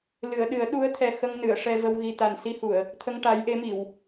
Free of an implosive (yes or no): no